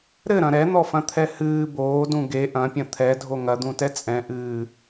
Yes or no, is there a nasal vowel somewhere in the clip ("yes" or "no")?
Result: yes